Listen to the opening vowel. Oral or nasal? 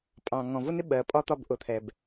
nasal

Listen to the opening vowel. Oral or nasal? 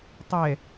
oral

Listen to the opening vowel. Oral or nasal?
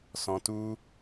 nasal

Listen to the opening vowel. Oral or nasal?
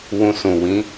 nasal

